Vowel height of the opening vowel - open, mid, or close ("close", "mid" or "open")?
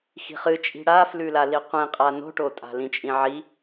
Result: close